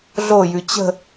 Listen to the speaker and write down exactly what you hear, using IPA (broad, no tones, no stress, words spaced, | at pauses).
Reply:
ɮojʉ t͡ɕə̤